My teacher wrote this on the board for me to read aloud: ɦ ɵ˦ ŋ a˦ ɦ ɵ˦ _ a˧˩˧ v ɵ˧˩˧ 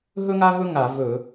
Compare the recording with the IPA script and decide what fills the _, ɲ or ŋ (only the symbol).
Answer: ŋ